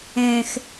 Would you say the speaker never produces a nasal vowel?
no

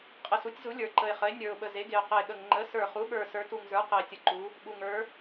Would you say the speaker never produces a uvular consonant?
no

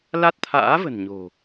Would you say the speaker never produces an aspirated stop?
no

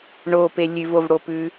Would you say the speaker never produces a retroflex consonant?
no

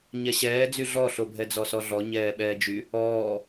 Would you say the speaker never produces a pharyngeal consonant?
yes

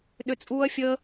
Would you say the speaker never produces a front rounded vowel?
no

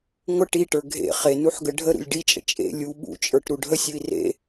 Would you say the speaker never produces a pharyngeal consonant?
no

